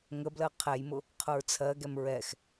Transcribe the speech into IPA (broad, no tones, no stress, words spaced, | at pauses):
ŋəblɜ qʰɛjmʊ | qʰʊɹt͡sʰɜɡɛm ɹɛx